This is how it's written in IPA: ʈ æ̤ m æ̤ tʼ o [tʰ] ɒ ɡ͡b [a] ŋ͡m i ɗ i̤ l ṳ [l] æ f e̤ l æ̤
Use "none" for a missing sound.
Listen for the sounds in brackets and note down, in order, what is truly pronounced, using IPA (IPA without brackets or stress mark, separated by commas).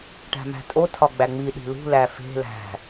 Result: tʰ, æ, l